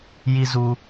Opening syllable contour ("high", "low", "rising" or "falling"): high